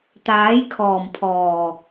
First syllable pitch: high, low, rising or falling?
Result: rising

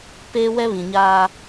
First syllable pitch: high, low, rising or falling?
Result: high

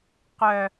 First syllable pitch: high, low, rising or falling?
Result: low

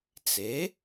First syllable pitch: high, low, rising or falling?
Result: rising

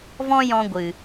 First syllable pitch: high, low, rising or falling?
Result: high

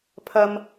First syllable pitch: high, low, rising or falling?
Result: high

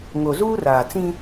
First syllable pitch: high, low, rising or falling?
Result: low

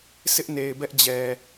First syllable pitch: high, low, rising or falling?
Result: high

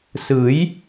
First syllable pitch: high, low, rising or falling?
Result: rising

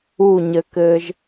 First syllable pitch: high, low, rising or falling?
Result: falling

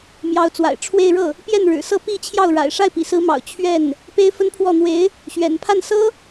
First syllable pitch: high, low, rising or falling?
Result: rising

